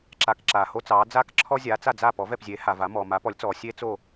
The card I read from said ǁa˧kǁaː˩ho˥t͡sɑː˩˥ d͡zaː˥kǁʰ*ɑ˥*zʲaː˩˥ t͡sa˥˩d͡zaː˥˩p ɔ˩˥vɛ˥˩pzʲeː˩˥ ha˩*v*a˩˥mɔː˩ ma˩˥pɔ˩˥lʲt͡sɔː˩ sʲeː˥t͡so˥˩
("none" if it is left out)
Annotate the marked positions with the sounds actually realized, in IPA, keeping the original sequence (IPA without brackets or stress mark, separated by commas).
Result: ɔ˥, v